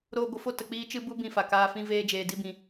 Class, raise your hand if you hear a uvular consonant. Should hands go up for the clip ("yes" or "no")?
no